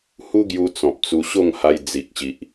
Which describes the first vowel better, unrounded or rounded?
rounded